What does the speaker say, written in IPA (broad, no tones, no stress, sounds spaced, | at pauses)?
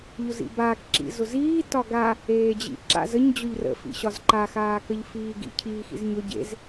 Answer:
ʎ ʊ z ḭ b aː k ǁ ḭ z ʊ z iː t ɒ ɡ a | eː d͡ʑ ḭ ǁ a̰ z ə ɲ d͡ʑ ʊ ʎ r ə̰ f ḭ ɕ ɒ z ǃ a x aː k ə ʎ f iː ɡ ḭ cʰ iː x ḭ z ɲ ʊ ɟ ḛ z